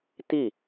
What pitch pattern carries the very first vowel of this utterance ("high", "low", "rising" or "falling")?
falling